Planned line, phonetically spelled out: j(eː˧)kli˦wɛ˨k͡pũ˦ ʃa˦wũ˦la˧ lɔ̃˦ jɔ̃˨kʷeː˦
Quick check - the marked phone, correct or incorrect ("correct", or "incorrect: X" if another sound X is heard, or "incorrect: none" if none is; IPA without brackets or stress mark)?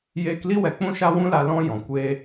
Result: correct